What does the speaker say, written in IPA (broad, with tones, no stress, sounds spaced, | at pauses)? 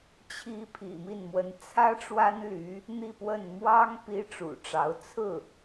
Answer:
t͡ɕʰ i˧˥ pʰ ḭ˨˩ m i˥˩ n m w ə˧˥ n t͡sʰ ä˥ ʈ͡ʂ w a˥ n l y˧˥ | n̪ i˥˧ p w ə˥˩ n m w ɑ˥ ŋ p i˥ ʈ͡ʂ ṵ˨˩ ʈ͡ʂ ɑ˧˥ ʊ̯ t͡sʰ ɹ̩˥˩